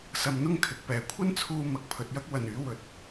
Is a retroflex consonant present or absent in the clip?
absent